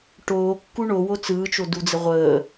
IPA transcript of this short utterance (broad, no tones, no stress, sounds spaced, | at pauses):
ʈ oː kː u ɳ o w o t͡s ɯː t͡ʃ o d u d͡z ə ʁʷ əː